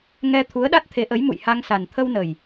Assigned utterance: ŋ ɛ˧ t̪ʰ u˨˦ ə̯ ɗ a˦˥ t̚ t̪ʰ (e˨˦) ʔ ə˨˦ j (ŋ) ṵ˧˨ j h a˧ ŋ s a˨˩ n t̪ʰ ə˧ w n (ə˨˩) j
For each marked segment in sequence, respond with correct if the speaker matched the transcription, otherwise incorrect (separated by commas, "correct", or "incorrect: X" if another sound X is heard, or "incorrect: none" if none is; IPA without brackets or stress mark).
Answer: correct, incorrect: m, correct